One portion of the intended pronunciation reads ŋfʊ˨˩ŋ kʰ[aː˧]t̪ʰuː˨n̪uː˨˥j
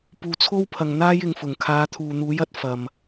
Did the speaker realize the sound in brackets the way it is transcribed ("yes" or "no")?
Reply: no